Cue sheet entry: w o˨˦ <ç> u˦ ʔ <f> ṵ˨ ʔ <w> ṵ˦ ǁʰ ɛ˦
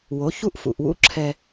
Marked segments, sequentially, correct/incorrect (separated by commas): correct, correct, correct